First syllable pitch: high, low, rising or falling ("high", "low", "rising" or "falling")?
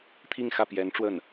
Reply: falling